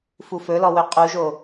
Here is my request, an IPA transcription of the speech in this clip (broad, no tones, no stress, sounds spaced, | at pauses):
f u f ɵ l ɔ w ɵ qʼ u ʒ o